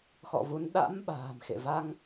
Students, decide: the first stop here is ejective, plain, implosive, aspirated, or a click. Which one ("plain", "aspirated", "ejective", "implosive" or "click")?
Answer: implosive